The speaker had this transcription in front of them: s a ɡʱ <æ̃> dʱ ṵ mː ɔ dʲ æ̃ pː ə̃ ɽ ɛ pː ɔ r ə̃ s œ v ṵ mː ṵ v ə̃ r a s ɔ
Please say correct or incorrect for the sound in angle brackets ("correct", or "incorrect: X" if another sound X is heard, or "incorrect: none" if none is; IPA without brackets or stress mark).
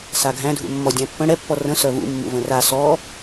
correct